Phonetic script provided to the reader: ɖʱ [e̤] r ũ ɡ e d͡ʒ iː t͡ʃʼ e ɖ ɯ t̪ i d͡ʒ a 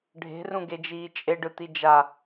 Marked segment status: correct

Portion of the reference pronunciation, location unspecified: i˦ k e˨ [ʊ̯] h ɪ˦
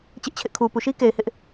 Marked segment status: incorrect: ɪ̯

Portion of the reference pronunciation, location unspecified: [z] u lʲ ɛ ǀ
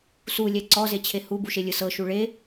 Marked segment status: incorrect: s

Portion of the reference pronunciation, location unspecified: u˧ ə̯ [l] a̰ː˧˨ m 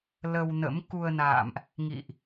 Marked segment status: incorrect: n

